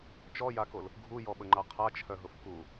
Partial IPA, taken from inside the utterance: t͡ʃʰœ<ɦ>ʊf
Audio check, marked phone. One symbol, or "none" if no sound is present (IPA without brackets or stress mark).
ɦ